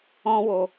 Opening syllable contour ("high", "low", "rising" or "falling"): high